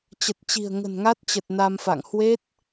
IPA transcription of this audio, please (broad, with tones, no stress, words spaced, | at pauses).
t͡ɕə˨˩t̚t͡ɕi̤˨˩ə̯ ŋə̤˨˩nŋa˦˥t̚t͡ɕə˨˩t̚ na˧mfa̰˧˨ŋ hwe˦˥t̚